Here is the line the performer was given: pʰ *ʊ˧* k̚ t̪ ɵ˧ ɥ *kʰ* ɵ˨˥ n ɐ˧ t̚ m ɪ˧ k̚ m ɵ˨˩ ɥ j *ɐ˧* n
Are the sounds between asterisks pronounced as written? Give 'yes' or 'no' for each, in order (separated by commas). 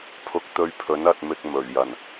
yes, no, no